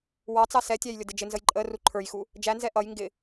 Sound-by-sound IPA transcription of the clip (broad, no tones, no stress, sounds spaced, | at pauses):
w ɑ t͡s ɑ s ɛ tʲ æ j lʲ ʊ d ɪ d͡ʒ ɪ n z ə j ǃʼ ə r u ǃʰ ə˞ j x u | d͡ʒ æ n z ɛ ʔ ʌ j ŋ ɡ ɪ